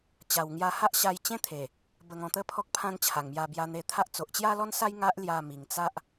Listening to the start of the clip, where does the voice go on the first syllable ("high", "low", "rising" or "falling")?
low